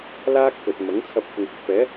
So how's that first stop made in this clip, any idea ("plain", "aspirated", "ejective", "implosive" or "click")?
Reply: plain